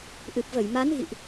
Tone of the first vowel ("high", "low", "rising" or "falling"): low